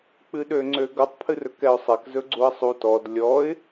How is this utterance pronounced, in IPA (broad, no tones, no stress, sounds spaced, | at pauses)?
k͡p ɨ ɗ ø ŋ͡ǀ ø ɡ ʌ tˤ pʰ ɨ r ɵ k ɛ ʊ̯ sˤ ɛ k z ɵ ɡ͡ǀ u ə̯ sˤ u t ɔ d lʲ ɔ ɪ̯